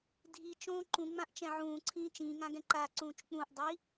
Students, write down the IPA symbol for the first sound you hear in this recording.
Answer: dʱ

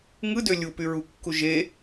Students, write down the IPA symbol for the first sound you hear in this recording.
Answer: ŋ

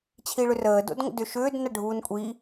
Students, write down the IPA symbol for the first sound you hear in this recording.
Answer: t͡ɕʰ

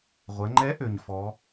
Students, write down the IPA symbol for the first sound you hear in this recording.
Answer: ʁʷ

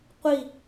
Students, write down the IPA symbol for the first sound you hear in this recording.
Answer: qʷ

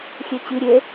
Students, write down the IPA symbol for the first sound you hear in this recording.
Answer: xʲ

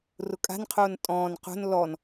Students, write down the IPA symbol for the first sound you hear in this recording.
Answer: r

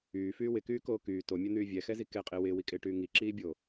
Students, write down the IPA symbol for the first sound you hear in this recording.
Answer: yː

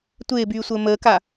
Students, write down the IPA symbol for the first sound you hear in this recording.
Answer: tʷ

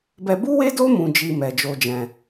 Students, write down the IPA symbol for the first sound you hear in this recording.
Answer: b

